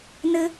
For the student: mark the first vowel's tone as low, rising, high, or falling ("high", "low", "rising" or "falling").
high